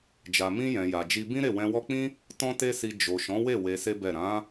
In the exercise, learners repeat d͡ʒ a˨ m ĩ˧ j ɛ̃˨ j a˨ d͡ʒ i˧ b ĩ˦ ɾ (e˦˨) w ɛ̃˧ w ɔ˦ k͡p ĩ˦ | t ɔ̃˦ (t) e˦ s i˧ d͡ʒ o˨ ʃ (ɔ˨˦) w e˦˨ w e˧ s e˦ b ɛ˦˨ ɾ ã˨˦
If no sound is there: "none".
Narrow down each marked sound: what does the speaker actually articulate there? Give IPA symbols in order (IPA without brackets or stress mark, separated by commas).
e˦˨, t, ɔ̃˨˦